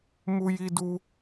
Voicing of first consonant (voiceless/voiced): voiced